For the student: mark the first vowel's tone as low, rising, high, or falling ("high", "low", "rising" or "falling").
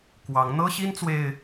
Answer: rising